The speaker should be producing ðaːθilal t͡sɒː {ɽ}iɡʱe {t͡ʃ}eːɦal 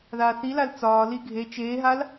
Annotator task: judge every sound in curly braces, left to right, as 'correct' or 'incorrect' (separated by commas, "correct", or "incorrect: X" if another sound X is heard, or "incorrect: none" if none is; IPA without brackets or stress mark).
incorrect: l, correct